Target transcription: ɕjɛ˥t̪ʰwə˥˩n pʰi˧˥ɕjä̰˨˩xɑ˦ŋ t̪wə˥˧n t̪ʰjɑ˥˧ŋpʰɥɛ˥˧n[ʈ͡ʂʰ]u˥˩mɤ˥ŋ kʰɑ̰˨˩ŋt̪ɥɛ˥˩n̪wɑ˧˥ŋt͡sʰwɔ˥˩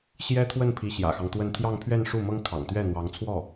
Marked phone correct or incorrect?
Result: incorrect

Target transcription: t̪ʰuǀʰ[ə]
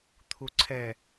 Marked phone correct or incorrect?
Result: incorrect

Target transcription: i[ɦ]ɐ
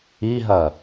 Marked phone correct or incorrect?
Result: correct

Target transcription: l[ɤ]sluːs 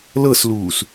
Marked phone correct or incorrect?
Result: correct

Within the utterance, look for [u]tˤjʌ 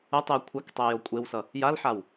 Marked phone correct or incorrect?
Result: incorrect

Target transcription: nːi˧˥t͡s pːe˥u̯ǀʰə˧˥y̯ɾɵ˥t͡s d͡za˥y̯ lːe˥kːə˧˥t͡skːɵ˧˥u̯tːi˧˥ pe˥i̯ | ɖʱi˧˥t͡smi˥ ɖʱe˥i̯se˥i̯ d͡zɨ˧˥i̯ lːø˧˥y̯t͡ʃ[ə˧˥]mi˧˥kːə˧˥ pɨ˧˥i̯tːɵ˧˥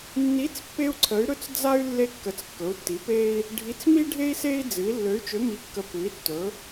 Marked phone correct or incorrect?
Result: incorrect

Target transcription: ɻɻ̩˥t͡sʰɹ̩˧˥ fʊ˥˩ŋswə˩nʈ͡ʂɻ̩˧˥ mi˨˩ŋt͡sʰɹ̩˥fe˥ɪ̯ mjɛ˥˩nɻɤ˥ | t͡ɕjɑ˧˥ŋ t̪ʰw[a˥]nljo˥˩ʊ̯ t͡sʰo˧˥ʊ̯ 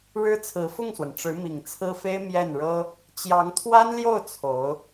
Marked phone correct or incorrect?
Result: correct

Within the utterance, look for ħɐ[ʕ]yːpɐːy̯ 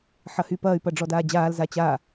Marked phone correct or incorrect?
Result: incorrect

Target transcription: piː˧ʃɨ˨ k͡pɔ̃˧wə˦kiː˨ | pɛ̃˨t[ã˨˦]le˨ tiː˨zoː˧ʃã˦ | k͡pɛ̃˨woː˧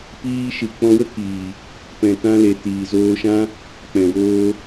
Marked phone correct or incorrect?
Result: incorrect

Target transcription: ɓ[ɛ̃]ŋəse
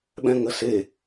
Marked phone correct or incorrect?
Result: correct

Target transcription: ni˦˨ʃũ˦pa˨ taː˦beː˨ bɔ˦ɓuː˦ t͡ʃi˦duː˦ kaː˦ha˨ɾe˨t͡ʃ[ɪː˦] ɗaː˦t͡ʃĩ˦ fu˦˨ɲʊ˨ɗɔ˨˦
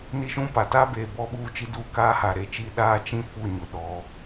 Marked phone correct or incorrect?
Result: incorrect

